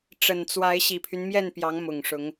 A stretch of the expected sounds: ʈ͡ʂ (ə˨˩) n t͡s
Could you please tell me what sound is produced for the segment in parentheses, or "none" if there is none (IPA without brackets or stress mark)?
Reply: ə˨˩